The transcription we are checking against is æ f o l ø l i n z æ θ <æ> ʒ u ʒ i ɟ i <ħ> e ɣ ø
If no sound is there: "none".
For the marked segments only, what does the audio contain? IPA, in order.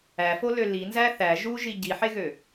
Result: æ, ħ

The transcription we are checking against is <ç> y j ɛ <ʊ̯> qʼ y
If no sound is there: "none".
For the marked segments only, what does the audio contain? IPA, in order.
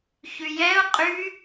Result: ç, ʊ̯

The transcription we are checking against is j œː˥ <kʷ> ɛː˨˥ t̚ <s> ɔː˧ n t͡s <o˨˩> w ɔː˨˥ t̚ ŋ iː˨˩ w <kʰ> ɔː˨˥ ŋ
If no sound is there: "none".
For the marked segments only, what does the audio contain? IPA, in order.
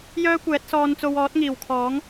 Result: kʷ, s, o˧, kʰ

